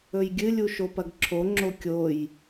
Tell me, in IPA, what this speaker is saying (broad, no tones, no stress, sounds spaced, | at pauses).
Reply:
ɵ j ɡʲ ɨ lʲ u ʃ o p ɐ ɡ ǁʰ o ŋ͡ǁ o kʲ o j